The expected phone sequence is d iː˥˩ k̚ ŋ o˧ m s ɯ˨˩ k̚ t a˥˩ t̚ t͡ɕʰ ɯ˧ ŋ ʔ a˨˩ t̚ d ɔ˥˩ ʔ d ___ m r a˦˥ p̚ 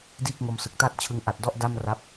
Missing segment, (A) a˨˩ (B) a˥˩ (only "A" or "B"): B